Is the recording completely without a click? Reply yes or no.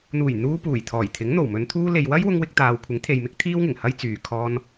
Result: yes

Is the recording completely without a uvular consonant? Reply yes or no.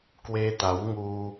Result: yes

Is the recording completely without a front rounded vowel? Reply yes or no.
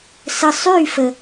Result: no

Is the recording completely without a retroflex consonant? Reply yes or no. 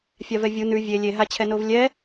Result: yes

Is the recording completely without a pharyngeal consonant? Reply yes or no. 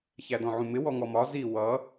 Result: no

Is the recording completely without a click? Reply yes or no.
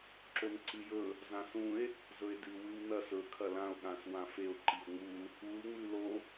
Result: no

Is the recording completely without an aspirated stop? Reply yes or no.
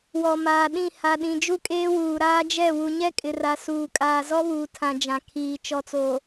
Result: no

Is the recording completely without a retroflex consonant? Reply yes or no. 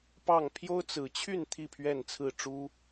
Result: no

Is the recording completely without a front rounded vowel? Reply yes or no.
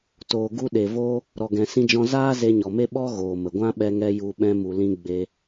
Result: yes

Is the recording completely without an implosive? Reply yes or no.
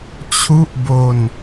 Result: yes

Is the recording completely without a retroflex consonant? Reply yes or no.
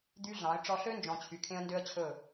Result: no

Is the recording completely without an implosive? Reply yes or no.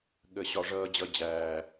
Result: no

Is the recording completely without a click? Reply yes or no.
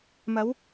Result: yes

